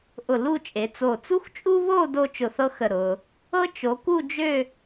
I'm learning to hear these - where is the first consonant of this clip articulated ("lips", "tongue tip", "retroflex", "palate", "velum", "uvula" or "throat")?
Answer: throat